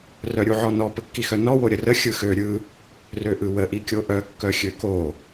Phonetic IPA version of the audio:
r œ ɾʲ u ʕ ɔ n ɔ p ə kː i x œ n ɔ w o ɾʲ ə r ə xʲ ɯ x ø ɾʲ ɯ | r ø ʔ ɯ w ə ʔ i kʲ o ʔ œ kː œ xʲ ø k o

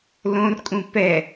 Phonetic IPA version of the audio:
l õ r kʼ ũ p ɛ

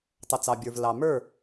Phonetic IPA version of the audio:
tˤ ʌ˨ t͡s ɑ˨ bʲ ə˞˨ v l ɑ˨ m ə˞˦˨

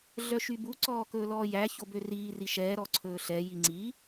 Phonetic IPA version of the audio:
ɮ œ ʃ y b u ǀ ɔː k ɵː l ɔː j æ ç o b ø r iː r i ʃ ɛː ɾ ɔ ǀʰ ɵː ɬ ɛ j i ŋ͡ǀ i

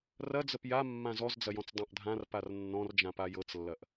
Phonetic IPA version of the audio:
r ɐ d͡z ə p j a mː ã z ɔ z d͡z ɐ j ɔ̃ t͡s dˤ ã ʔ dʱ ã r p a r nː ɔ̃ r d͡ʒ ã p a j ɤ t͡s lː ɐ ʔ

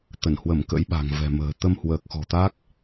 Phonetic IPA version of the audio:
t̪ ə˧˩ n h w ə˧˩ m k ə̰˧˥ j ɓ a̤˨˩ ŋ v ɛ̤˨˩ m ə̤ː˨˩ t̪ ə˧ m h w əː˨˩ k̚ x ɔ̤˨˩ t̪ a˦˥ k̚

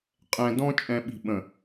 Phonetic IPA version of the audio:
qʼ ɛ̃˨ d ɔ̃˦ t͡ʃʼ ɛ̃˨ ɓ i̤˨ ɓ ə̃˨

